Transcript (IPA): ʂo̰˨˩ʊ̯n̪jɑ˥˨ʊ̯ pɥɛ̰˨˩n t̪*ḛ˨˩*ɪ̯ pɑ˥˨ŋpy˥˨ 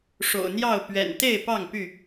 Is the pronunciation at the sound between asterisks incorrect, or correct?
incorrect